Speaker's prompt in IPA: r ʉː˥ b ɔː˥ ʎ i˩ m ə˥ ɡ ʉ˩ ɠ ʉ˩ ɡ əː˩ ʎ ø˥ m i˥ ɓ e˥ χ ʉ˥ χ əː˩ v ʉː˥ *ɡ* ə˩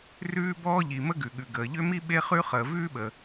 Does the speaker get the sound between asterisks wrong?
yes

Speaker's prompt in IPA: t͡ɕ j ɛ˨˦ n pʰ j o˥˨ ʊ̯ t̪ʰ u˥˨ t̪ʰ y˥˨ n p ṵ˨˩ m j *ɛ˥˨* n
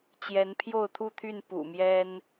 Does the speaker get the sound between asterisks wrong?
yes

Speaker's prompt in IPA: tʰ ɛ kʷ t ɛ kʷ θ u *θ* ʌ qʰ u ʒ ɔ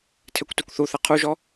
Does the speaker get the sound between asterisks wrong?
no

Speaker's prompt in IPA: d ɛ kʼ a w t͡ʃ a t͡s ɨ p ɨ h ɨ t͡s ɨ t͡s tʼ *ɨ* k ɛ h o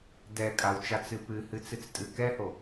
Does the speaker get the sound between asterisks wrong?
no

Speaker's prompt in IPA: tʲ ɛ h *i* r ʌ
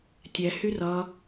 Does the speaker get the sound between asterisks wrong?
yes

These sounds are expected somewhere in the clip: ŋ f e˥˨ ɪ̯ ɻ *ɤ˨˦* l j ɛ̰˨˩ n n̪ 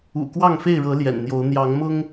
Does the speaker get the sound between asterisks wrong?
no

